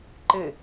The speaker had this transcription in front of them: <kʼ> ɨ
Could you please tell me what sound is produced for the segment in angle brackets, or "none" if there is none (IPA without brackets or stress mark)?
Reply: ǃ